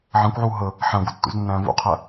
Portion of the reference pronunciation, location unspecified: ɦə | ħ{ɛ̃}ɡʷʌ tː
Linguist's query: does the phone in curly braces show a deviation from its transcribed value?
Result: yes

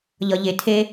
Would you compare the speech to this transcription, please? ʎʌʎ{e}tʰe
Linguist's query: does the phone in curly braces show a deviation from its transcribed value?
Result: no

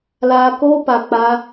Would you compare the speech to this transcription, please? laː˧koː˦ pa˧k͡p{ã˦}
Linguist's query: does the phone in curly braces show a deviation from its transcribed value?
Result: yes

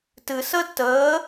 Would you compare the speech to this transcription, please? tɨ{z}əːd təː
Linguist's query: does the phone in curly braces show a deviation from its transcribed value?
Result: yes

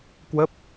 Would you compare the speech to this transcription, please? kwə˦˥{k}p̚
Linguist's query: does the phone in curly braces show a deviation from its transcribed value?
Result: yes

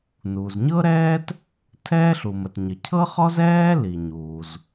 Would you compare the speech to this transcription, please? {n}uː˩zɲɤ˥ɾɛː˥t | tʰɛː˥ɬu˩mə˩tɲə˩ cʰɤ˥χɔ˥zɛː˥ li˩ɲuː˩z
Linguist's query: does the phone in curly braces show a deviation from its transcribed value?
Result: no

